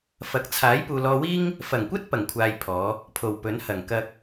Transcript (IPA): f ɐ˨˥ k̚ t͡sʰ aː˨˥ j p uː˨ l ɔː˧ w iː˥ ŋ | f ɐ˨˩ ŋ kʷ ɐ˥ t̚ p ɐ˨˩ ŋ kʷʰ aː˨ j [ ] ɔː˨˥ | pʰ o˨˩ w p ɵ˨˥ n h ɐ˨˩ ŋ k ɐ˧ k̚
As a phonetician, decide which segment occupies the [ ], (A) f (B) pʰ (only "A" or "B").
B